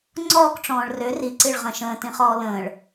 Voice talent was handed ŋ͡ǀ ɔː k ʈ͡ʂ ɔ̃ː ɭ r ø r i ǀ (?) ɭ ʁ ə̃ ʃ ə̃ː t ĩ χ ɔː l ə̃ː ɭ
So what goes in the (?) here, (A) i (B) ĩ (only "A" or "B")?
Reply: A